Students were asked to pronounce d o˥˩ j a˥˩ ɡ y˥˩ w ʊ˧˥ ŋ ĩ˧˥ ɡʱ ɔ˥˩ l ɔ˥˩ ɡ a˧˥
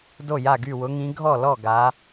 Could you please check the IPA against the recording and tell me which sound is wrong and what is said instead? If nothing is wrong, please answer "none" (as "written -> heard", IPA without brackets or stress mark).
none